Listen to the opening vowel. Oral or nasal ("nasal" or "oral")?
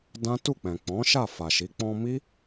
nasal